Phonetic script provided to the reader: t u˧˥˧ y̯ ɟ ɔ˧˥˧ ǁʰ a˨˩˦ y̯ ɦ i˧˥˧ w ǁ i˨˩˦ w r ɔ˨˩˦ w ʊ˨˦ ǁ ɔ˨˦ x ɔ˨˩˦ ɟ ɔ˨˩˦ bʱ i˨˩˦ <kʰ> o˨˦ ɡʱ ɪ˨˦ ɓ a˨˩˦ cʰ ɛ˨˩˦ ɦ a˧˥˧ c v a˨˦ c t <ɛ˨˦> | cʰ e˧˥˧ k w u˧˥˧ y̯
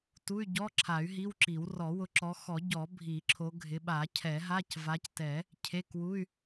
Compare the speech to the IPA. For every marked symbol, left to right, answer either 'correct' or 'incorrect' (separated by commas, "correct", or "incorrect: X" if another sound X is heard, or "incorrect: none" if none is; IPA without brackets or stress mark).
incorrect: ǁʰ, incorrect: ɛ˨˩˦